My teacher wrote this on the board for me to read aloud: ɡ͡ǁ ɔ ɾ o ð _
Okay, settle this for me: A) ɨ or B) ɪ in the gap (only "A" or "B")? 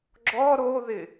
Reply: B